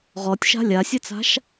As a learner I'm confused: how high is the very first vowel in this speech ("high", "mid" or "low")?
mid